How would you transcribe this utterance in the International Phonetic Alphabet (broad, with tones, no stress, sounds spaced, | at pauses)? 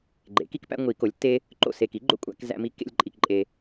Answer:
ɡ͡ǃ ḛ˩˥ k i˦ k p æ̰˦ ŋʷ i˨˩˦ k o˩˥ lʲ tː e˦ | ǃ o̰˦˨ s e˨ k i˩˥ ɡ͡ǃ o̰˦ kʷʼ æ̰˨˩˦ k z æ̰˦ m i˦ kː ḛ˦ lʲ ǃʼ i˨ k ǃʼ e˨